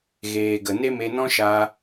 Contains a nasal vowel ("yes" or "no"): yes